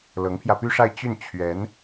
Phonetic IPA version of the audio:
lɤ˧˥ŋpʰjä˧py˥ʂa˥˧ɪ̯ t͡ɕy˥˩n t͡ɕʰɥɛ˧˥n

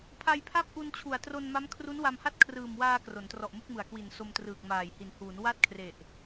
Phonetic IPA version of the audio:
pʰa˧jpʰa˥˩p̚ʔu˧nt͡ɕʰu˨˩a̯ tro˧nma˦˥m kʰru˦˥nwa˧mha˥˩t̚ kʰrɯː˨˩mwaː˧ kro˩˦ntrɔ˨˩ʔmu˥˩k̚mɯ˨˩a̯ kwi˨˩n so˧mtrɯː˨˩k̚maː˨˩j hi˩˦nhuː˩˦n wa˥˩t̚kʰre˨˩ʔ

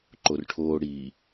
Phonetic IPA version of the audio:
ǃorʈʰoː ɽiː

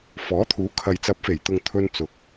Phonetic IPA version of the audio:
fɔː˨˥t̪ʰuː˨˥ kʰɐ˨jt͡sɐ˨˥p̚fe˨˩j t̪ʊ˨ŋ t̪ʰɵ˧nt͡sʊ˨˥k̚

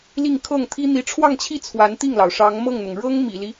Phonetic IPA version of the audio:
li˥˧ŋkʰɤ˥˩ŋt̪ʰi˥ n̪i˧˥ʈ͡ʂʰwɑ˥˧ŋt͡ɕʰi˥˩ t͡sʰwa˧˥nt̪i˥˩ŋlɑ˩ʊ̯ ʂɑ˧˥ŋmɤ˥˩ŋn̪ʊ˩ŋ ɻɤ˥ŋ mḭ˨˩li˦

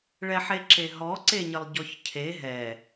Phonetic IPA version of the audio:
ɭɛħeǁeɦɔ ǀeɲəlˠɟɔçcʰe ɦɛ

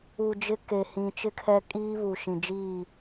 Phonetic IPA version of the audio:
u˨d͡ʒɪ˦ke˨ hĩ˨t͡ʃɪ˦kʰɛ˦ kʼiː˦βu˨ ʃĩ˨d͡ʒiː˦˨

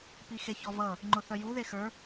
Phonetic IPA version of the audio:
pixeçɔvʌ | ŋ͡ǃʊθœju ðexə˞

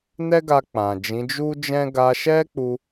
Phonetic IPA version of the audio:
nɛ˦ɡa˧k͡pã˨d͡ʒĩ˨˦ d͡ʒu˦d͡ʒɛ̃˦ ɡa˧ʃɛ˦k͡pu˧

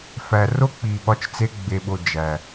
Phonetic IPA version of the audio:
fæ˨ ro˦k͡pi˨ɓɒ˧t͡ʃt͡se˧ ɡ͡be˨ɓo˨ d͡ʒæ˨

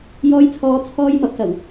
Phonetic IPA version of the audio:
jɔː˧jt͡sʰɔː˨˧ t͡sʰɔː˥jmɐ˧p̚sɐ˨˩w

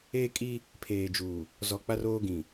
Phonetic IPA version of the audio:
eː˦kʼi˦ | pʰeː˨d͡ʒuː˨ | zɔ˨k͡pa˦roː˦ ɡĩ˨

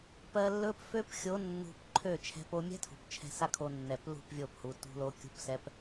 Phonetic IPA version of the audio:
pɜ˧lːɵ˦p fø˦p xʲo˨˦ nːṳ˧pǃʰø˦˨ t͡ʃʰɛ̤˧po˧mʲɛ̤˦tʰṳ˨p t͡ʃʰɛ̤˧sa˦kʰo˧nːɛ˨p lṳ˦˨pvʲo˦˨phu˨ tṳ˧lo˧ kʲṳ˦psɛ˦p

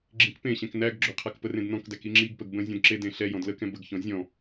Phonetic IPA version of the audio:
ɡ͡ǁĩkpẽɕɛ̃k næɡ ɡ͡ǁʏqʰak pərẽdnɔ̃kdæk iŋ͡ǁiɡpəɡ bə̃zʲɔ̃d ǁedẽ ɬɛ jɔ̃dləkɛ̃ bəɡçɔ̃ zʲɔ̃

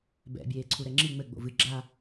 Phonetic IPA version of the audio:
bɛ̰ bʲeːǀʰuɾɛŋ͡ǁi ŋ͡mɘ ɡ͡bo̰vɨ ɡ͡ǁa

